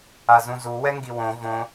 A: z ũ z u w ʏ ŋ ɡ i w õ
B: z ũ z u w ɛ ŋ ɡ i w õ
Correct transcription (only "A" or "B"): B